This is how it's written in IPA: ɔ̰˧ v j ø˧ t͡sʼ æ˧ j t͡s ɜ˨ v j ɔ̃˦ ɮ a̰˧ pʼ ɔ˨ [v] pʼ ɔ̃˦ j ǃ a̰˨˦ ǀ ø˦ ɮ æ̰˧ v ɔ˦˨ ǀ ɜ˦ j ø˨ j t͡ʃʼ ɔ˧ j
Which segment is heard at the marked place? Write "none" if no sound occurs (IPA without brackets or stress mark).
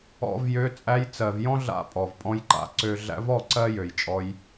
v